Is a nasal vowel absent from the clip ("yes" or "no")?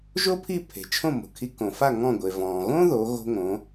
no